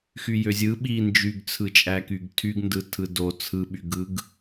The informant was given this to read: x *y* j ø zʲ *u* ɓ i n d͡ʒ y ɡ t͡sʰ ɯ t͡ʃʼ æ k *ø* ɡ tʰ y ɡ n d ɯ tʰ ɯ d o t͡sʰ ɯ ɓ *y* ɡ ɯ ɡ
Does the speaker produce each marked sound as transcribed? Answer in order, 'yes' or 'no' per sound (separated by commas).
yes, no, no, yes